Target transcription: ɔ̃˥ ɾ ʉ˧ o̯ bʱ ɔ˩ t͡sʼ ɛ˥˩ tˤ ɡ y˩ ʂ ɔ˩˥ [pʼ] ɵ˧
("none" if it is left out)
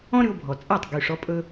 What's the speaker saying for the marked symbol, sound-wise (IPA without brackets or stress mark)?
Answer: pʼ